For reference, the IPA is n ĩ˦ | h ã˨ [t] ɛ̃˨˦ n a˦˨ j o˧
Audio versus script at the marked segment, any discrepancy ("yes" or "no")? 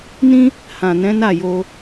yes